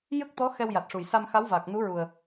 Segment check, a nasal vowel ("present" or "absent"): absent